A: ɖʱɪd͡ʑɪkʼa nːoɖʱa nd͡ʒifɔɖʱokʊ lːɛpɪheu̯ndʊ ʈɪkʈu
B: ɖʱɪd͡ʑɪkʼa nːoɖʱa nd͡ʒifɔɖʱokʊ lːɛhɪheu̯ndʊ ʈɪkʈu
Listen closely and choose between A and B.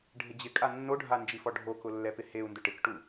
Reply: A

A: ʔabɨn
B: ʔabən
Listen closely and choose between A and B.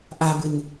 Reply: A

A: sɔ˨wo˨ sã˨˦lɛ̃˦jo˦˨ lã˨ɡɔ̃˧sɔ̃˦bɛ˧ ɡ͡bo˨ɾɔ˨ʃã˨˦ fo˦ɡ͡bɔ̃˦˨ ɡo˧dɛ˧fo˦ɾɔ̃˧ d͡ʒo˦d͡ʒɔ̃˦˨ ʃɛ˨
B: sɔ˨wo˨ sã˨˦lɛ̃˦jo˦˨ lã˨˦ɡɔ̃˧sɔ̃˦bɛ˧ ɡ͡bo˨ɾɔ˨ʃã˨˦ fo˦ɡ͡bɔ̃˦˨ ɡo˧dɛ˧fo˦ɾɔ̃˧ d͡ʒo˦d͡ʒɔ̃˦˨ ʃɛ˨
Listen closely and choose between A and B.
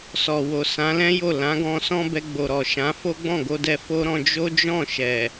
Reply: B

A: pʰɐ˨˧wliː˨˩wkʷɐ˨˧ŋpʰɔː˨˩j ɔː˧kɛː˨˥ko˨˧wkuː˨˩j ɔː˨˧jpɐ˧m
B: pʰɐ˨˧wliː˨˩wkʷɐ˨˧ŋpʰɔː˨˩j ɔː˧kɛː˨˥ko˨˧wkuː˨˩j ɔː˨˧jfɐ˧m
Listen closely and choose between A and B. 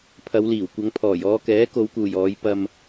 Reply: A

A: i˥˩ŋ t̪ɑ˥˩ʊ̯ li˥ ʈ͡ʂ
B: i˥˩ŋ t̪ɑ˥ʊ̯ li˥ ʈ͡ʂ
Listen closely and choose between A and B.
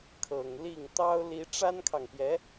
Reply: B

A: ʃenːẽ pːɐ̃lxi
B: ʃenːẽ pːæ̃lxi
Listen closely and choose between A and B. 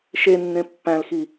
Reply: B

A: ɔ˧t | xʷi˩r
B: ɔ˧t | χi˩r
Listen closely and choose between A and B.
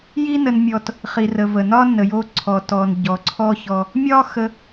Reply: B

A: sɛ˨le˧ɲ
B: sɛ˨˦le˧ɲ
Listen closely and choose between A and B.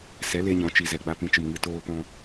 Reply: B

